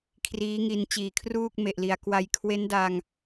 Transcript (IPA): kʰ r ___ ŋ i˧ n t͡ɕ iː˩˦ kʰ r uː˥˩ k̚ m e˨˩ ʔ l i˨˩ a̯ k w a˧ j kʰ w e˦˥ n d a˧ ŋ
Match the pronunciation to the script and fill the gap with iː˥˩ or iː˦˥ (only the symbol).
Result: iː˦˥